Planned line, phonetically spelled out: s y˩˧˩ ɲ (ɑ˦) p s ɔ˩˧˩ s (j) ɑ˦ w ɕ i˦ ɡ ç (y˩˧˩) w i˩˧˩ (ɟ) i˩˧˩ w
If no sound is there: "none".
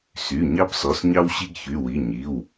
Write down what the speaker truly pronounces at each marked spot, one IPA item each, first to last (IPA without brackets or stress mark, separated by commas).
ɑ˦, ɲ, y˩˧˩, ɲ